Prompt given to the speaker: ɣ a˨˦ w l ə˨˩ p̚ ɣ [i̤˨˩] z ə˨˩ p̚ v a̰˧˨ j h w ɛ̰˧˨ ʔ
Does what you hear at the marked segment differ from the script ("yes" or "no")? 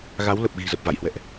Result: no